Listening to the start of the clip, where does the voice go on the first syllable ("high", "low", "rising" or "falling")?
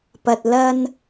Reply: low